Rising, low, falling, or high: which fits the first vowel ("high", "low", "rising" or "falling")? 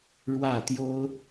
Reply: falling